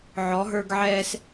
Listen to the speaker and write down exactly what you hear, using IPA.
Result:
ʕɔ˩˧ɦə˞˧ɡʕɛː˧s

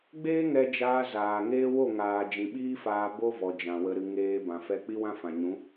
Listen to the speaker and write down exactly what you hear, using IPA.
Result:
ɡ͡beː˦ŋɛ˧d͡ʒaː˧ zaː˨ŋeː˦ wo˦˨ŋaː˨ d͡ʒĩ˨ɓiː˦faː˧ bo˦vɔ˨d͡ʒã˨ wə˨ɾɨ˨ ŋeː˧ bã˨fɛ˧ k͡pi˦wã˦fã˨ ɲũ˨˦

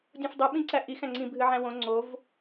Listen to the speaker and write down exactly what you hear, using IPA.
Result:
dʲõfdˤɨɓĩǀæ ʔixæ̃ ŋ͡ǀĩbʱɨʕæ̃ wõ ŋ͡ǀov

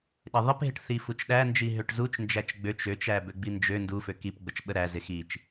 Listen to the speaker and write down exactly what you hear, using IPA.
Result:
ɗɪðˤɪpɦɪʈθi fut͡ʃɗænd͡ʒi ɦøʈzut͡ʃnd͡ʒæt͡ʃ ɡ͡bøt͡ʃ øt͡ʃæbø ɡ͡bind͡ʒø ndu føkipɡ͡bət͡ʃɓə ɾæzɪ xit͡ʃ

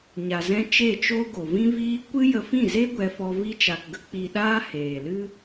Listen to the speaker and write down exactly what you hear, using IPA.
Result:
ɲa˨zɛ̃˧ t͡ʃe˦˨t͡ʃo˦ ɡo˨vĩ˦viː˦ kʷɨ˦ jə˧fĩ˦˨ze˦ ɡʷɛ˧fɔ˧ vi˧t͡ʃa˨kɡə˦ k͡pi˧ɗaː˦heː˨lɨ˦

